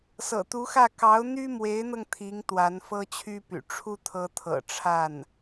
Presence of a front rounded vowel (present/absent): present